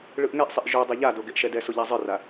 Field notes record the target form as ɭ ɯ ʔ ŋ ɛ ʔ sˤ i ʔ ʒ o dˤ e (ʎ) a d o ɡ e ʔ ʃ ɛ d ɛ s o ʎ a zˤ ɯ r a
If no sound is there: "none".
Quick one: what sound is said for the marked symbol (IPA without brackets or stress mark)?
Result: ʎ